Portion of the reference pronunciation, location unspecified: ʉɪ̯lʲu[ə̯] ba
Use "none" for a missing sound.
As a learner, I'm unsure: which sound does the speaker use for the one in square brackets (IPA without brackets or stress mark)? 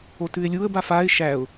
ə̯